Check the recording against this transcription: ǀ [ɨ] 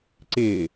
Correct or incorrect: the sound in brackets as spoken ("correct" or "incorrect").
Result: incorrect